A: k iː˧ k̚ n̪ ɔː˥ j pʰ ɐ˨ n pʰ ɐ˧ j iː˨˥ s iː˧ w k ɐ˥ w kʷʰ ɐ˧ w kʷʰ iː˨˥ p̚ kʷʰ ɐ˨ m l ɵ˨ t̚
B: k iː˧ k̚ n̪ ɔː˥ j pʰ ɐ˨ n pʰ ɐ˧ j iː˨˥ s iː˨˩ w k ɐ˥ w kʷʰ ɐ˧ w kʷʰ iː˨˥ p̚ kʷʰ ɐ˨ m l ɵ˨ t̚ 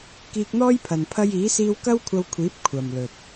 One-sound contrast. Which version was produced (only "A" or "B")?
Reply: A